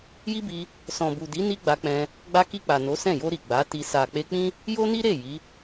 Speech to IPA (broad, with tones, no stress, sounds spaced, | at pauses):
j i˦ b i˧ | s ɔ̃˨ b u˨ d i˨˦ n i˦ ɡ͡b a˧ k͡p ɛ̃˧ | ɡ͡b a˧ k i˧ k͡p a˨ n o˨˦ s ɛ̃˦˨ j o˧ ɾ i˨ ɡ͡b a˨˦ t i˧ s a˨ k͡p e˧ k͡p ĩ˦ | j o˦ n i˦ ɾ e˦˨ j i˨˦